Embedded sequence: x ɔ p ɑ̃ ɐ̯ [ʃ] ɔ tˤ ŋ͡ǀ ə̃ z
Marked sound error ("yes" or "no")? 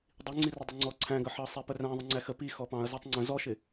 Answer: yes